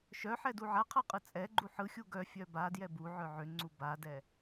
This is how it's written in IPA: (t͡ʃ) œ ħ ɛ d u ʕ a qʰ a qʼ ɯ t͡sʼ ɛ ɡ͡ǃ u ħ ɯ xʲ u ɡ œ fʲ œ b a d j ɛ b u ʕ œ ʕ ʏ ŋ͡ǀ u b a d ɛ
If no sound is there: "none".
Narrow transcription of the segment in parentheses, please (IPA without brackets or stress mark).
ʃ